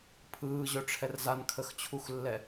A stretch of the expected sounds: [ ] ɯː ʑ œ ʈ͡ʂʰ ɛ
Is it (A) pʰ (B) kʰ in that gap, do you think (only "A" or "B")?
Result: A